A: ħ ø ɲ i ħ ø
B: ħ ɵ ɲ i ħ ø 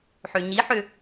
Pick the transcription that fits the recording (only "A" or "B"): A